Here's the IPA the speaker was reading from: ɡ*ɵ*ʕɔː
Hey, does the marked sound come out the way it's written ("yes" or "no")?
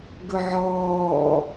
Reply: yes